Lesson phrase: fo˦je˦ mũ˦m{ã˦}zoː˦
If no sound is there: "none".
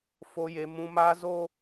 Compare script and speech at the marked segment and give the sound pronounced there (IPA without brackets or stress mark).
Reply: a˦